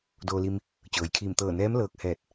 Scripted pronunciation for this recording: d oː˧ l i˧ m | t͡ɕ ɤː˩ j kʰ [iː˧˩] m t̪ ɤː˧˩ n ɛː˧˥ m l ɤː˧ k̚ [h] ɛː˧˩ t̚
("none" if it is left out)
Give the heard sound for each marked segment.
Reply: iː˧˩, h

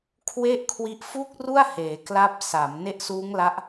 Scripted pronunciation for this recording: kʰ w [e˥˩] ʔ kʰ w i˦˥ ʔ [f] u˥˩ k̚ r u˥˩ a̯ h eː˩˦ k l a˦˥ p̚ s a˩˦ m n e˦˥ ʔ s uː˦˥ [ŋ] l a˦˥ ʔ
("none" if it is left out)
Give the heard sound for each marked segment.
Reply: e˥˩, f, ŋ

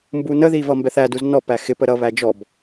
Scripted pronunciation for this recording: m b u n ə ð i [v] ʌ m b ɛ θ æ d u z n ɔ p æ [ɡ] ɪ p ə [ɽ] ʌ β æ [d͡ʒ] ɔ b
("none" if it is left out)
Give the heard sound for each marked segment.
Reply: v, x, ɾ, d͡ʒ

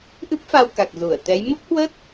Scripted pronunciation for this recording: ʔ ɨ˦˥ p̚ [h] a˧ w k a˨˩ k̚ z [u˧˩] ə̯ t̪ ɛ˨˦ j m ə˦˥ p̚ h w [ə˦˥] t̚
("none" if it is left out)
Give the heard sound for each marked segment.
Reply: f, u˧˩, ə˦˥

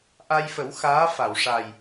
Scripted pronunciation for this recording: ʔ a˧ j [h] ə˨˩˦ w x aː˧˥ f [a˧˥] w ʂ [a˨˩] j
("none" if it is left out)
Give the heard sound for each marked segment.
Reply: f, a˨˩˨, a˨˩

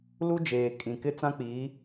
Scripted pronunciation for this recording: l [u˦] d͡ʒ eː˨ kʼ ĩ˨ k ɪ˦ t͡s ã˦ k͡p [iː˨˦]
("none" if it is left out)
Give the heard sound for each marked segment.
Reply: u˦, iː˨˦

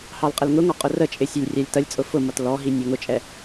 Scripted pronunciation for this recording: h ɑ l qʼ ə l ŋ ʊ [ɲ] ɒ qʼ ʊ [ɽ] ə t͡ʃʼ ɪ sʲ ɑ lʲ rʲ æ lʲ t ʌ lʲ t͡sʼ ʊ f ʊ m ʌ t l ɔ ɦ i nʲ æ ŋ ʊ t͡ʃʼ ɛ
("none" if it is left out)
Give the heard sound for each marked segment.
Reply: ŋ, r

